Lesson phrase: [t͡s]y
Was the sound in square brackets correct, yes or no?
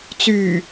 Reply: yes